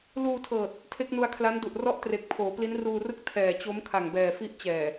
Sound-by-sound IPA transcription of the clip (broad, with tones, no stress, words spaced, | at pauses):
luː˧tʰɤː˨˩t̚ | tʰe˦˥k̚nu˧a̯kʰla˦˥n du˨˩ʔrɔ˥˩ʔtre˨˩k̚ pʰoː˩˦pli˦˥nruː˧rɯ˥˩k̚ tʰɛː˨˩t͡ɕo˦˥m kʰa˨˩ŋbɛː˨˩ fi˦˥ʔt͡ɕɛː˨˩